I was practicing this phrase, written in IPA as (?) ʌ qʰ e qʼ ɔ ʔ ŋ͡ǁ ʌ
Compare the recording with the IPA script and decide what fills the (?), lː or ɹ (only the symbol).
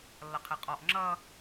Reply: lː